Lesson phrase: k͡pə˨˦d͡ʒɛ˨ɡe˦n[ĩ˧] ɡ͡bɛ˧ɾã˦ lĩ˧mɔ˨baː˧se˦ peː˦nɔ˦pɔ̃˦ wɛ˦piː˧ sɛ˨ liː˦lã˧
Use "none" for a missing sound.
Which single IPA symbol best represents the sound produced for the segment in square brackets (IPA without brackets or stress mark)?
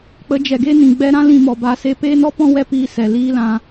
ĩ˨